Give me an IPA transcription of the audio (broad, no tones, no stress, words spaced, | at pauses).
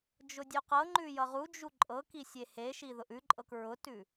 d͡ʒʊdʲʉqɤŋ͡ǃʉ jʌʁud͡ʒu ǃʼɤki sʲeheʃi ðʊʔʉǃʼɤk ɹʊtʉ